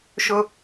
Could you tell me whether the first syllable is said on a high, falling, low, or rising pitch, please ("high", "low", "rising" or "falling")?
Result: high